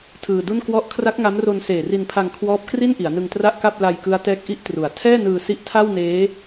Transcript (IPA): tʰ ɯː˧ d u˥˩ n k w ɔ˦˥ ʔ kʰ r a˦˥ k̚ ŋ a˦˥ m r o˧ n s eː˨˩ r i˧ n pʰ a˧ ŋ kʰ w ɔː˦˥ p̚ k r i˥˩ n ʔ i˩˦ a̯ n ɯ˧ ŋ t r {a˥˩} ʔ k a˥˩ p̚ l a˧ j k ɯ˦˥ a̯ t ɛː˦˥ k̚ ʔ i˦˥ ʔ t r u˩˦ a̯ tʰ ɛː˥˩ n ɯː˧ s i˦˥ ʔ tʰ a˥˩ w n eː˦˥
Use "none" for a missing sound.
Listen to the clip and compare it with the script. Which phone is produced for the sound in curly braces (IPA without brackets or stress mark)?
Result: a˥˩